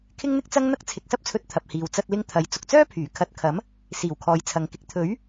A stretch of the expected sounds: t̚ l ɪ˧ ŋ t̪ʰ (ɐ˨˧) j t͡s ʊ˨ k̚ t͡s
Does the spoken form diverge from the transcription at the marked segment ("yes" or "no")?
yes